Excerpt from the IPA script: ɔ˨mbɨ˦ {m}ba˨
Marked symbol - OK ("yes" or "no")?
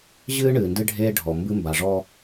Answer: yes